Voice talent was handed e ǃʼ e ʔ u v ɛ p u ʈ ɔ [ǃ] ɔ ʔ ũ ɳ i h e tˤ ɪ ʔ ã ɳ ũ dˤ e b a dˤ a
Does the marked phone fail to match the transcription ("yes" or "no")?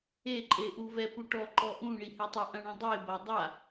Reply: no